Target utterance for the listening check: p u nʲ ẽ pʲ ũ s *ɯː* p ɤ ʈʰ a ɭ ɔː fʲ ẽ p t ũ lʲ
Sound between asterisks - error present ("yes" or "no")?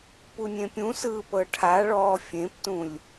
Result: no